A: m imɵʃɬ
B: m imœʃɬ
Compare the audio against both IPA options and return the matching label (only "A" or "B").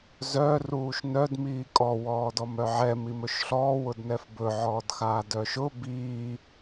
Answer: A